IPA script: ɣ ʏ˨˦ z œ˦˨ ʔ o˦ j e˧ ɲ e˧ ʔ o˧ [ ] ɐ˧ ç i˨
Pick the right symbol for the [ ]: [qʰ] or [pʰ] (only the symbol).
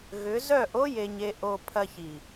pʰ